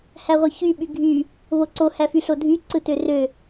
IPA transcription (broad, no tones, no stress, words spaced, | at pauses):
hæʁʷɯçy ɓyɡʱy | βoǀo hæfyɬodʱy ǀɯtørø